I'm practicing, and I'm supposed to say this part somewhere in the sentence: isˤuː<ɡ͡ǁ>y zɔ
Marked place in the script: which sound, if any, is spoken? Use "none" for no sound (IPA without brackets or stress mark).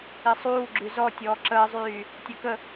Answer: ɡ͡ǁ